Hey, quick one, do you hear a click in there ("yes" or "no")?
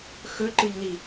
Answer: yes